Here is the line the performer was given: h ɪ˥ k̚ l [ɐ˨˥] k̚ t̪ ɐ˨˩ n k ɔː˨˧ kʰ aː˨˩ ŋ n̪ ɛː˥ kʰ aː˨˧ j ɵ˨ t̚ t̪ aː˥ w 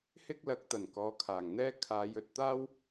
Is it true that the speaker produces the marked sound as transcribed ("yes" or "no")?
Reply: yes